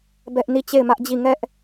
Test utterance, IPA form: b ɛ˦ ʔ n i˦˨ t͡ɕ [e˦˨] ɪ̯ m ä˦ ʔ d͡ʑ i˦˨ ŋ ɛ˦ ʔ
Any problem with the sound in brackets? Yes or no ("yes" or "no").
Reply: no